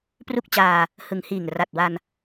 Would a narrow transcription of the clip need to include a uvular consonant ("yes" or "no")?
no